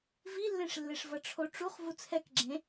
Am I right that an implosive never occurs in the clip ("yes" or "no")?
yes